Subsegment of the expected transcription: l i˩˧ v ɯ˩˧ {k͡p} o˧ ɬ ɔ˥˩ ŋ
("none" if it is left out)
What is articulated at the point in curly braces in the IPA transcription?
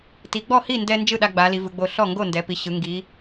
ɡ͡b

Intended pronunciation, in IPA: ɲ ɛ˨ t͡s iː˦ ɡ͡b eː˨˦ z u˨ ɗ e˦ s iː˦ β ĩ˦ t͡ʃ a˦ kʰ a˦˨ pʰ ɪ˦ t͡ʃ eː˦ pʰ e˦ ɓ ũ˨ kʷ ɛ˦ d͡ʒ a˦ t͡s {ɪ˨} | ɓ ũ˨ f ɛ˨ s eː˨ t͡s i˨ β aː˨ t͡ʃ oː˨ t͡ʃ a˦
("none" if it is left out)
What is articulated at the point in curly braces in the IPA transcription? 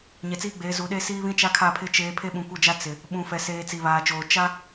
ɪ˨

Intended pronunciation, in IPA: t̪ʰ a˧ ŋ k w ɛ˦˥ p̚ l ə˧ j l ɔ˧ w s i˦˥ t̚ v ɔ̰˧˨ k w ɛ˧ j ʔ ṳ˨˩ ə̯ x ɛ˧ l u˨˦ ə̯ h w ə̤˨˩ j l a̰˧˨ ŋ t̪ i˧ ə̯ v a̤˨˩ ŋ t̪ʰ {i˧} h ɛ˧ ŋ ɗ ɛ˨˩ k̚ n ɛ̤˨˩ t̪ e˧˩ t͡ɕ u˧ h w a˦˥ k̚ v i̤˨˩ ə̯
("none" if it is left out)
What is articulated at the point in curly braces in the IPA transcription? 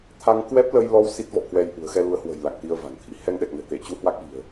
ḭ˧˥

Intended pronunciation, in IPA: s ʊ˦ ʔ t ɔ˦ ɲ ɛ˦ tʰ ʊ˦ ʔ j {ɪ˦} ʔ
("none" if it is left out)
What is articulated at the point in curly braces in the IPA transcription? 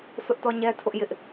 ɪ˦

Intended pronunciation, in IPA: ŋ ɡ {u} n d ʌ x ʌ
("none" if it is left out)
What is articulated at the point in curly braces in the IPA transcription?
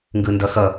ɯ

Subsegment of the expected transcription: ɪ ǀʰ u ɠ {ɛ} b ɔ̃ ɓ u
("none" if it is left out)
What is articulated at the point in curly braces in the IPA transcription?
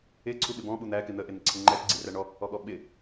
ɪ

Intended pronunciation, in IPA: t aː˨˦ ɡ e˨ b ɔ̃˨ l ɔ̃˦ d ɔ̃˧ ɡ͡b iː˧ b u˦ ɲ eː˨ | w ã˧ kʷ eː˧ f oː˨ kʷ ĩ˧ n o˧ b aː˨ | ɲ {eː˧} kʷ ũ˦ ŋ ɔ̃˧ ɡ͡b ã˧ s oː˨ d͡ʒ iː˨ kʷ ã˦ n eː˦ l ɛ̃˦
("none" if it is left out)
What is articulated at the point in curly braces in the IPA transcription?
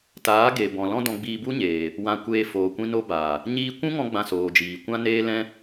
iː˧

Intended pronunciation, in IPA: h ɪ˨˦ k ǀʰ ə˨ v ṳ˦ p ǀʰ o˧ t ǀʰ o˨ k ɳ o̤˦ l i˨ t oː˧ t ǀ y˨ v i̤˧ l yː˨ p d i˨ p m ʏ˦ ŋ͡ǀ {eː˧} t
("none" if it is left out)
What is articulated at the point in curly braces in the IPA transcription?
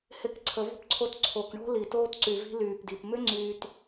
yː˧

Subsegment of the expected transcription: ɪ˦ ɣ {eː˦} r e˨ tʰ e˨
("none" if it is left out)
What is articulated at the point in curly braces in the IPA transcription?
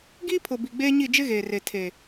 eː˨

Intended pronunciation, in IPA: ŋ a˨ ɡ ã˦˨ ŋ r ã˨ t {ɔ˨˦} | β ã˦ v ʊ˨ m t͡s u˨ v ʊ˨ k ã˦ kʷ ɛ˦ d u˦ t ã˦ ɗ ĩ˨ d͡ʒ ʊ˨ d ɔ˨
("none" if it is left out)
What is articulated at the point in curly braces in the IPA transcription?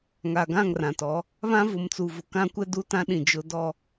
ɔ˨˦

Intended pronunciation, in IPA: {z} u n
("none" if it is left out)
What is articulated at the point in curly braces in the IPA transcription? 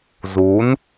z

